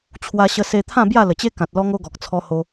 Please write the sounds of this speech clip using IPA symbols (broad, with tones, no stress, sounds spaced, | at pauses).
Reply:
t͡ɕʰ w a˧ ɕ ə˧ s e˧ t̪ʰ ã˥˧ b j a˥˧ l ə˨˩ t͡ɕ e˦ k ã˨ t̚ l ɔ˦ ŋ o˦ ɡ ɔ˨ k̚ t͡sʰ ɔ˧ h o˧